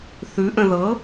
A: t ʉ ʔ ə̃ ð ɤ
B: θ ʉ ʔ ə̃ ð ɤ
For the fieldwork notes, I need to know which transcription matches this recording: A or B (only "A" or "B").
B